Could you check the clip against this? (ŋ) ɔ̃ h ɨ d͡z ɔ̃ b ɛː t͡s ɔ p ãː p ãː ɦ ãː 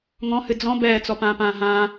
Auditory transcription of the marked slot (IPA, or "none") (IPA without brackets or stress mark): ŋ